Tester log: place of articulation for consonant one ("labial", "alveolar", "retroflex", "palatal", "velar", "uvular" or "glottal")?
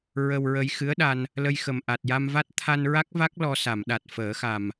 alveolar